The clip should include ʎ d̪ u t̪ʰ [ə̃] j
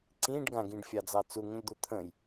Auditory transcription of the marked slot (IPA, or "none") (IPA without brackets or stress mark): ə̃